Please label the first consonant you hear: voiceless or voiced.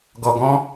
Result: voiced